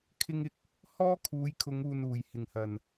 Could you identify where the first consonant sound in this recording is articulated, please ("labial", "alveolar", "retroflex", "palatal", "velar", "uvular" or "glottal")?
velar